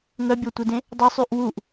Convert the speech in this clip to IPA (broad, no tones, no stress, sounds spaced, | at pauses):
ŋ œ bʲ ɔ tʷ i d ẽ | dˤ ə sˤ y ʔ w u ʔ